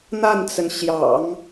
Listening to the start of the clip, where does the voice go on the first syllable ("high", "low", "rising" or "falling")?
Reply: falling